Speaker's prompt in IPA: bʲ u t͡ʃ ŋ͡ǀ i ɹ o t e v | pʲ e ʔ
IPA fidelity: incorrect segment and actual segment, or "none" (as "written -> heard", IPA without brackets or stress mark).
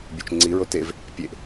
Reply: none